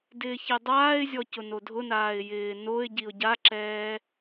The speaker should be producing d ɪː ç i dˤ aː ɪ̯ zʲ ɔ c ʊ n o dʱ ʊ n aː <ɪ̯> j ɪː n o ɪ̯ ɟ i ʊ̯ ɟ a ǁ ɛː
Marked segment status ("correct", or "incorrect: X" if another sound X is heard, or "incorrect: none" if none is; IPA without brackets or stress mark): correct